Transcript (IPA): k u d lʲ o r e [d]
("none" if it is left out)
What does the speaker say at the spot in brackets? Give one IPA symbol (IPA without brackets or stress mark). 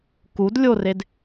d